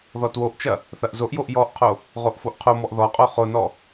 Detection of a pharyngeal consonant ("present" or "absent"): absent